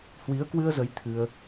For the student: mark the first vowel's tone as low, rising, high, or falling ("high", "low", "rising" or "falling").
rising